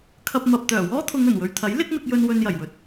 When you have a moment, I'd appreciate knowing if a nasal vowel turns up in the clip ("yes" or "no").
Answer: no